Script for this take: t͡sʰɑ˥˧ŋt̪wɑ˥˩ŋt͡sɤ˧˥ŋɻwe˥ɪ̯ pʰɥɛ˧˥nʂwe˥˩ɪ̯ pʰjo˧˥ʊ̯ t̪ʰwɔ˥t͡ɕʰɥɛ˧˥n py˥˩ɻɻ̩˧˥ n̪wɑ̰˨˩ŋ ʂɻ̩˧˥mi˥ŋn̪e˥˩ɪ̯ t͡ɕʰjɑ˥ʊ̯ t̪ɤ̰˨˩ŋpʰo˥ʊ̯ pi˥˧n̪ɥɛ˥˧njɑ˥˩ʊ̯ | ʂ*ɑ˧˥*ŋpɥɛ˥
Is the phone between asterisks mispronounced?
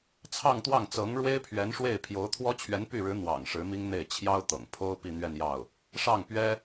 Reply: yes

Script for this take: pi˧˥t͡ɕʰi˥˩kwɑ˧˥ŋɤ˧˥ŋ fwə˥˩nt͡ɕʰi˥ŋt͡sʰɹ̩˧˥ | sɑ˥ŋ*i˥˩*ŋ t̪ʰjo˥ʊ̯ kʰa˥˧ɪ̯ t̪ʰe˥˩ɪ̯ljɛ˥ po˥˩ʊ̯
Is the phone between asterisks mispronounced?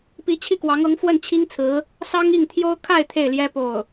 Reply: no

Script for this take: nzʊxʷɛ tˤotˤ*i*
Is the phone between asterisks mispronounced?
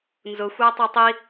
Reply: no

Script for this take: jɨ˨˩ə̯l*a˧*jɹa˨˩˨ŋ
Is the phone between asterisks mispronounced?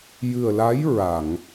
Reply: yes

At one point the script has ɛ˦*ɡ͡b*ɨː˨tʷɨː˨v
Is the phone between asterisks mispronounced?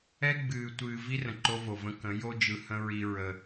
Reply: no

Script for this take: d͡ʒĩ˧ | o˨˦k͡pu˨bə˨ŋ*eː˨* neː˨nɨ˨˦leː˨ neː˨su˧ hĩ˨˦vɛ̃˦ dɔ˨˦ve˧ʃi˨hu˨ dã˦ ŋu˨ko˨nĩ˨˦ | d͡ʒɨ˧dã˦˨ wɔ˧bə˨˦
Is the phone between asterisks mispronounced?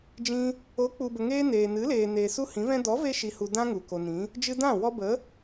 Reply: yes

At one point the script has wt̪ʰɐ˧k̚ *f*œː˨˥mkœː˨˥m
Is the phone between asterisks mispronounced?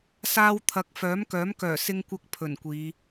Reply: no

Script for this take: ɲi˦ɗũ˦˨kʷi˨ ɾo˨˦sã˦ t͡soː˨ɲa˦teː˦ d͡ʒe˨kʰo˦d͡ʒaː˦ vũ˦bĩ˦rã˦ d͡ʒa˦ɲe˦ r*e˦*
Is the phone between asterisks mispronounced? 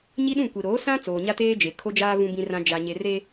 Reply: no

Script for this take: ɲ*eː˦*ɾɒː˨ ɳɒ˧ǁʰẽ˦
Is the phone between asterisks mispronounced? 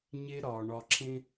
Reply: yes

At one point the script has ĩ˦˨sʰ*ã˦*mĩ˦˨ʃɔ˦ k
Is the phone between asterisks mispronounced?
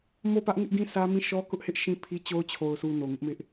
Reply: yes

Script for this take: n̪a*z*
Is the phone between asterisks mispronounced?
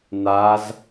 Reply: no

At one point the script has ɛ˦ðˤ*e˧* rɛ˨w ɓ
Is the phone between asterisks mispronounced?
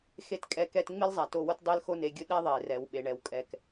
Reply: yes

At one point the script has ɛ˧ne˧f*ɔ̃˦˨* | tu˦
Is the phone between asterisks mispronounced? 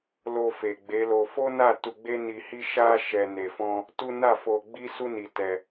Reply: yes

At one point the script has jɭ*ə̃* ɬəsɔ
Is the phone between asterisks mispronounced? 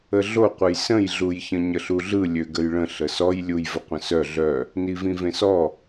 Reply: no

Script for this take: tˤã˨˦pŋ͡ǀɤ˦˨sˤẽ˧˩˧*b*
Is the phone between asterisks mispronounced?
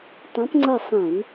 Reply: yes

